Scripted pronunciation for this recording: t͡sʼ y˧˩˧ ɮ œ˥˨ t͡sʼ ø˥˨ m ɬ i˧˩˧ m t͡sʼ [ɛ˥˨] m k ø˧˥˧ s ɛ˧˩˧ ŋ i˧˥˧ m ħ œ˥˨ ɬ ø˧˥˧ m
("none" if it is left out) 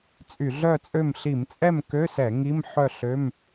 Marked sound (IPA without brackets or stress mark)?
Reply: ɛ˥˨